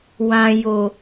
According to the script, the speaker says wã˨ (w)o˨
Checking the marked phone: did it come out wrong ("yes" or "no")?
yes